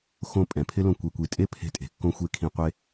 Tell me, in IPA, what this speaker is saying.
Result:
x õ˧ pʼ ɛ̃˨ pʰ ɪ˦ l õ˧ kʷ e˧ kʷ i˧ tʼ e˦ pʰ e̤˧ tʼ e̤˨ kː õ˦ xʷ e˦ kʰ ĩ˧ qʷ e˦

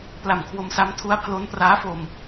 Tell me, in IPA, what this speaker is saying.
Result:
p l a˨˩ m kʰ w o˧ m s a˦˥ m tʰ u˦˥ a̯ pʰ l o˦˥ n p r aː˦˥ f o˧ m

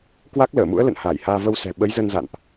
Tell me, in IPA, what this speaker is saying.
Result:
k w a˦˥ k̚ l əː˧˩ m ṵ˧˥ ə̯ l ə̰˧˨ n h aː˧˩ j h aː˧ v ə˧ w s ɛ̤˨˩ ɓ ə˨˦ j z ə˧ n z a̰˧˨ n ʔ

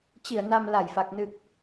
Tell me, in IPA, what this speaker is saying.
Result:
t͡ɕ i˧˩ ə̯ n a˨˩ m l a˧˩ j f a˨˩ k̚ n ɨ˨˩ k̚

